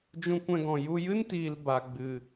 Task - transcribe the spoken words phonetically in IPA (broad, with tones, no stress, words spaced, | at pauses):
d͡ʒũ˧kʷɛ̃˧ɡɔ̃˨ ju˧ jɨ˦ntiː˨l ba˨ɡ͡bɨ˨